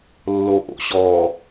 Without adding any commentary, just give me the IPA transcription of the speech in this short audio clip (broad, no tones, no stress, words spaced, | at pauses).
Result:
lːoʔo̰ɕɔ